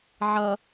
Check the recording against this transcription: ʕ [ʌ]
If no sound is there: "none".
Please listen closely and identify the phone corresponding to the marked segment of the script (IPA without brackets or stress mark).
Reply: ʌ